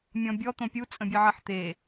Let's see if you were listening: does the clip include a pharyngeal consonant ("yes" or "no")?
yes